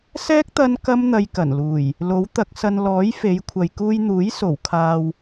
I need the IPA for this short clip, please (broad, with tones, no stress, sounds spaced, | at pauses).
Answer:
s ɛː˥ k̚ t̪ ɐ˧ n k ɐ˥ m n̪ ɐ˧ j k ɐ˨˩ n l uː˨˩ j | l o˨˥ w t̪ ɐ˨˥ k̚ s ɐ˧ n l ɔː˨˥ j f e˨˧ j kʷʰ ɐ˨ j k uː˧ j n̪ uː˨˥ j s o˨˩ w kʰ aː˨ w